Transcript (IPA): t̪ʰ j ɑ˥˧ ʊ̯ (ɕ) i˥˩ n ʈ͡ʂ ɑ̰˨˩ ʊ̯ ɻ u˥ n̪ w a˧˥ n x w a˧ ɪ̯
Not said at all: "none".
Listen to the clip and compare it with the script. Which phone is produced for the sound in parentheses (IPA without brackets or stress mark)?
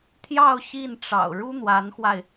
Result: ɕ